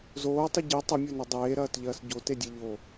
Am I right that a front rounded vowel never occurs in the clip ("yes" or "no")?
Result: no